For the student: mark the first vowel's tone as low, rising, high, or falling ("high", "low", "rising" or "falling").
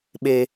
low